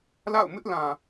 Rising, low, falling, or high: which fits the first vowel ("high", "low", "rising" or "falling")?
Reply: falling